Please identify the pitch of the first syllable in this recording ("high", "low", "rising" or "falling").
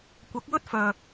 rising